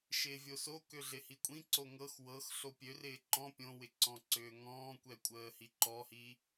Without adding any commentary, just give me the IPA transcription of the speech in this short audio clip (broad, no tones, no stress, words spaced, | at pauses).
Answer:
ʃɪːvʲoso køɮɪhikʷʼĩ ǀoŋɤx wɤx ɬopʲørɪː ǃɔ̃ pʲõwɪ ǀɔ̃ǀʏːŋɔ̃ːkʷɛ kʷʼəːhiǃɔhi